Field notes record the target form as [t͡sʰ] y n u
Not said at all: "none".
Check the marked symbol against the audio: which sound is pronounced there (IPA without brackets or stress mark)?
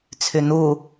t͡sʰ